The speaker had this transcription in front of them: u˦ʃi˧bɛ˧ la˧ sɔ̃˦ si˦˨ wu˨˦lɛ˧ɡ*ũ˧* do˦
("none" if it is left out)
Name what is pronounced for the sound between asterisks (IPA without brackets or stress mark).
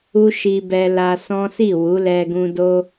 ũ˧